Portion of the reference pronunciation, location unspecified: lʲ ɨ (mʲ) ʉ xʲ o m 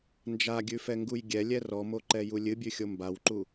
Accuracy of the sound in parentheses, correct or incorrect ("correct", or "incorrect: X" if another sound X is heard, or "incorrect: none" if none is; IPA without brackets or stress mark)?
incorrect: bʲ